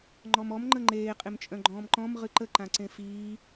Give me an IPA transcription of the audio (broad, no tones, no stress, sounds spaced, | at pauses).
ŋ͡ǃ ɔ m ɔ m ŋ͡ǃ ə ŋ͡ǃ eː qʼ e m t͡ʃʼ œ̃ ɡ͡ǃ ɔ̃ː m ǃ ɔ̃ m ʁ ɨ ǃ ə ǃ ã ǀ ẽ f iː